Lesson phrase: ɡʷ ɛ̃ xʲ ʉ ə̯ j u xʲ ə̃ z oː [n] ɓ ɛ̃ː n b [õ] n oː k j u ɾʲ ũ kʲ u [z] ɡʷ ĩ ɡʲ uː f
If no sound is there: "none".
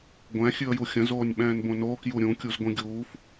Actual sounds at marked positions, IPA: nʲ, õ, z

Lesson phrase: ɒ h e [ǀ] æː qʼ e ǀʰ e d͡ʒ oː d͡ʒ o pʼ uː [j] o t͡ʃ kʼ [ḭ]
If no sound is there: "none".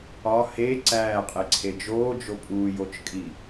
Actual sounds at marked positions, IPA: ǀ, j, i

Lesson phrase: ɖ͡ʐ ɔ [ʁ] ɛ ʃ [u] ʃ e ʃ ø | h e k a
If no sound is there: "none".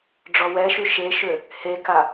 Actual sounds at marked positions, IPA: w, y

